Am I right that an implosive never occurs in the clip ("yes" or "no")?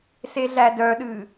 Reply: no